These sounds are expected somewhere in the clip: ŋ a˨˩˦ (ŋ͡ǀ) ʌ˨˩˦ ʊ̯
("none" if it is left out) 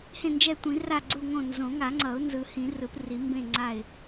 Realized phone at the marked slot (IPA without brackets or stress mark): ŋ͡ǀ